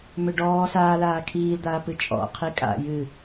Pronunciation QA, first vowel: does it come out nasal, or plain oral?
oral